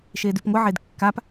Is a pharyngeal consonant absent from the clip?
no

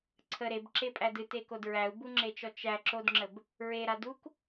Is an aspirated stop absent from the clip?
no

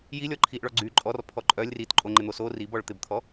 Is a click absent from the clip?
no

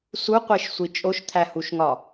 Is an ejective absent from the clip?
no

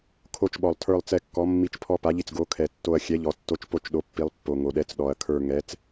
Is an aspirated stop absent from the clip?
no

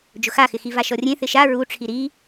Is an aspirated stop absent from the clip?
no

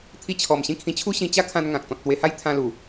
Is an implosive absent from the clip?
yes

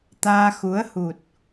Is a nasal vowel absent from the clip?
yes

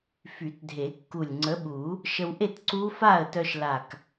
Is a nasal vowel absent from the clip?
yes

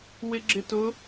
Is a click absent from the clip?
no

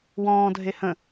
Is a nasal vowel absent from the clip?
no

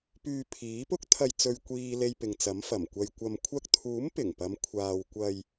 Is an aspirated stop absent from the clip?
no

